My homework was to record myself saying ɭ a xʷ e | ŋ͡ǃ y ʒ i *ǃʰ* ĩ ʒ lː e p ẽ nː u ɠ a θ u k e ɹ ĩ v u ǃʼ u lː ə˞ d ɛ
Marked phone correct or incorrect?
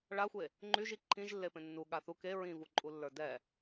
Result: correct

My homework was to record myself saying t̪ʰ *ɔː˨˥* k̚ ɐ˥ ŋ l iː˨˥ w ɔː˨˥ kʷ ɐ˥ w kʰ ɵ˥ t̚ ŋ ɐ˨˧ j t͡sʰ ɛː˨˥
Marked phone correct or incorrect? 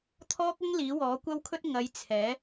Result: incorrect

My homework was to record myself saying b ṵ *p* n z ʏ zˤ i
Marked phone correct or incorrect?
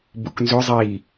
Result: incorrect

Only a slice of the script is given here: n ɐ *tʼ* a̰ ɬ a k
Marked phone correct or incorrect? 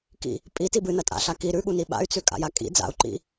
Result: correct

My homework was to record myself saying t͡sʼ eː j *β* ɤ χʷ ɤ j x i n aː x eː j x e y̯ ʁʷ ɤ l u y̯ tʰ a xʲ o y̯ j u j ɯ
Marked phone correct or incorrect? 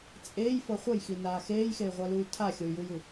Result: incorrect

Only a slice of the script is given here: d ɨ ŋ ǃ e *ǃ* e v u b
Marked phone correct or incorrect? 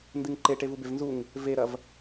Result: incorrect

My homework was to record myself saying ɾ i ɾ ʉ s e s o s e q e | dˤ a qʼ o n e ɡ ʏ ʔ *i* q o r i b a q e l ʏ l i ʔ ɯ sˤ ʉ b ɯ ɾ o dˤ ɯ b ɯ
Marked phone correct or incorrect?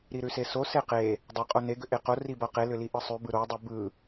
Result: incorrect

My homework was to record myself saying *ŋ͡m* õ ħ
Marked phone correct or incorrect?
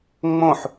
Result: correct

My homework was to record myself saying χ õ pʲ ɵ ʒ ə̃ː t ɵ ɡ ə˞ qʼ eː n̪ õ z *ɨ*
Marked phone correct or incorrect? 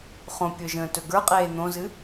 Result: correct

